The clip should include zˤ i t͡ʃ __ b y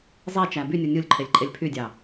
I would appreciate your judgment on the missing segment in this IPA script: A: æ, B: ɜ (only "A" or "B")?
A